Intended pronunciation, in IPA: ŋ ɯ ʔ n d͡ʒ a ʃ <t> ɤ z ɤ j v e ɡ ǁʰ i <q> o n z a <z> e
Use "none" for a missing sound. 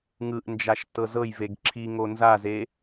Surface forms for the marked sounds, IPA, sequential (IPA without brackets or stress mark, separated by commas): t, ŋ, z